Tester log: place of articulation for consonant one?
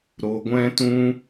alveolar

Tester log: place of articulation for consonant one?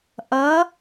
glottal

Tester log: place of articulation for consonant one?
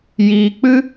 palatal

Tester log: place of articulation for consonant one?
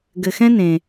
velar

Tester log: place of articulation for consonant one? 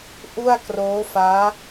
glottal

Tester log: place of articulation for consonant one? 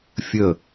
labial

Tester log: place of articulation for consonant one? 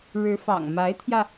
retroflex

